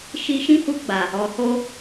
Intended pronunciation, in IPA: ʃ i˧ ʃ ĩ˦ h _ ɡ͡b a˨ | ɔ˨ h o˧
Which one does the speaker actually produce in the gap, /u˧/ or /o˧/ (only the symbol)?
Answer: u˧